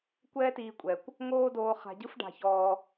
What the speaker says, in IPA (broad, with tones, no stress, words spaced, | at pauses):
kʷɛː˥tiː˧kʷʼɛ˩kʷ | ŋoː˥doː˧χa̤˧ɟɯ˥f ɖa̤˧çɔː˧